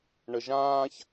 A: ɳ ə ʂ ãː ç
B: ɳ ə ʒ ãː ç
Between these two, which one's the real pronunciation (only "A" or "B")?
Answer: B